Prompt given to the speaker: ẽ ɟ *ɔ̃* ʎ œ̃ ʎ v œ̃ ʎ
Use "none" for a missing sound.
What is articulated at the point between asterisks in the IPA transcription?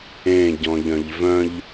ɔ̃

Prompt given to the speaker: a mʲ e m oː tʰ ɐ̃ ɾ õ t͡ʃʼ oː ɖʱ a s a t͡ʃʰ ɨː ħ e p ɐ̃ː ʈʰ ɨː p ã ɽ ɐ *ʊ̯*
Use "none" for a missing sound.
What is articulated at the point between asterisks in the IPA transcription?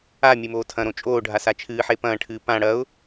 ʊ̯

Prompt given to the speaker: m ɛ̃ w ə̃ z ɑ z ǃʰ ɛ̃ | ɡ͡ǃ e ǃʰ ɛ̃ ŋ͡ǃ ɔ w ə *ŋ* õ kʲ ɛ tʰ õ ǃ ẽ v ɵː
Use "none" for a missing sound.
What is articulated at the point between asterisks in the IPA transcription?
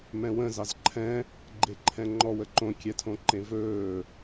ǃ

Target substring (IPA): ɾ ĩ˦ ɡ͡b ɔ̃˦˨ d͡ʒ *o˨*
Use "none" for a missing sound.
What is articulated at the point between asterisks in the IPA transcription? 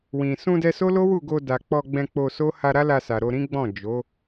o˨˦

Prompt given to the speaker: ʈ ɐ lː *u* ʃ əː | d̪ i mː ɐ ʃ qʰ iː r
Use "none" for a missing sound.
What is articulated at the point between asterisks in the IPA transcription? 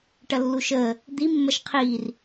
u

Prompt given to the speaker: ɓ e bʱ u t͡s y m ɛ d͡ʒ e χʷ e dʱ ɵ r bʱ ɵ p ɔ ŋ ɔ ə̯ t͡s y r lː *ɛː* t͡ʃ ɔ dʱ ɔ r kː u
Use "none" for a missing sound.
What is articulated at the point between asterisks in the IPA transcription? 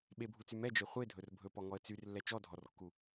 ɛ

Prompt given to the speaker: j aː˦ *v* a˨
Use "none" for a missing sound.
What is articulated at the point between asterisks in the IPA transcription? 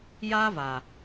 v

